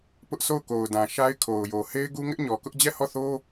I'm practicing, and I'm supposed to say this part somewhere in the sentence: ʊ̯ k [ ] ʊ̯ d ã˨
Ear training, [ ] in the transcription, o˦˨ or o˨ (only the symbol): o˨